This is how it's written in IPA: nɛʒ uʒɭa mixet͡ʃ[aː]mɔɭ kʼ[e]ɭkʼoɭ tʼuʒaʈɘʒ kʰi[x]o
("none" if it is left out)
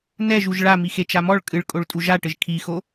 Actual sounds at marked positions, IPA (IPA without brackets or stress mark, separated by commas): a, ɨ, x